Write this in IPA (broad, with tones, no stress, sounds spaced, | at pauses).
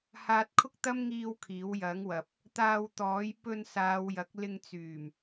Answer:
h aː˧ t̚ kʰ ʊ˥ k̚ t̪ ɐ˥ m ŋ iː˧ w kʰ iː˨˥ w j ɐ˨˥ ŋ w ɐ˨ p̚ | t̪ aː˧ w t̪ ɔː˨˥ j p ɵ˧ n s aː˨˧ w j ɐ˨˥ k̚ l ɪ˧ ŋ t͡s yː˨˩ m